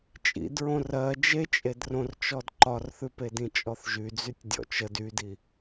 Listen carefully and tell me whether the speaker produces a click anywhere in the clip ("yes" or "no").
yes